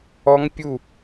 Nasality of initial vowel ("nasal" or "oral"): oral